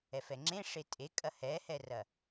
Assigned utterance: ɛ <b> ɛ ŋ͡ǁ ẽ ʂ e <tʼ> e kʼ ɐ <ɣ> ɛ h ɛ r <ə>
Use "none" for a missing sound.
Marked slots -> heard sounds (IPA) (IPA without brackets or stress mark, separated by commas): f, tʼ, h, ɐ